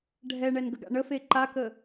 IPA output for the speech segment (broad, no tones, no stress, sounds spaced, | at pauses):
ɖʱ ɛ ɳ ɛ n ɡ ə ɡ a̰ ɳ ə f e ǃ a k ə